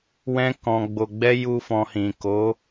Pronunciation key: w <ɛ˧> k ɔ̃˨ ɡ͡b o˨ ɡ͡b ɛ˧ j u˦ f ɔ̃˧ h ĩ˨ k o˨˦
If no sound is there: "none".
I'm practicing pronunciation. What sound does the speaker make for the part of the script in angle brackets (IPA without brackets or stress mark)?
ɛ̃˧